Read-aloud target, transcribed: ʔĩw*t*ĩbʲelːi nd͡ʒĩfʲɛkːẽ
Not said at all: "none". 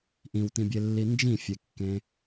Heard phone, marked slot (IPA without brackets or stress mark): t